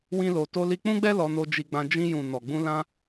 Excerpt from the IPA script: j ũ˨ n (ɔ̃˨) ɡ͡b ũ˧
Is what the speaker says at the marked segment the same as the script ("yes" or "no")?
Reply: no